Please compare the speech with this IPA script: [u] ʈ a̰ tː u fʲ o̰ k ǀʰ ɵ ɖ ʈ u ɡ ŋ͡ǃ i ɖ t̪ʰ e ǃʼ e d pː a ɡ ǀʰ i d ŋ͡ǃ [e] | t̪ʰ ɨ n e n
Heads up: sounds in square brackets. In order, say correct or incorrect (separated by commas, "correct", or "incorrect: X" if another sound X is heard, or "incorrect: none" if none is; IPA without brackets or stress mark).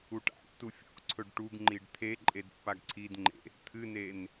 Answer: correct, incorrect: ḛ